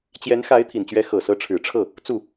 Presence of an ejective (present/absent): absent